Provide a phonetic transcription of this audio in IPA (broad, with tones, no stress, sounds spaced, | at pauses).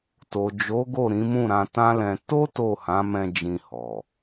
t o˨ d͡ʒ o˨˦ ɡ o˦˨ ɾ ĩ˨˦ m ũ˦˨ ɾ ã˧ t ã˦ l ɛ̃˧ t o˦ t o˦˨ h ã˨˦ m ɛ̃˧ d͡ʒ ĩ˧ h ɔ˨